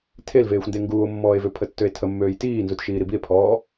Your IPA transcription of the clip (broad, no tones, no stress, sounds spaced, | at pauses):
tʰ e l v eː xʷ n d e ŋ ɡ uː o̯ mː ɔː e̯ v ø pʰ ə tː ø e̯ tʰ ə mː øː j t iː n z u t ʃ iː ɾ i b i e̯ pʰ ɔː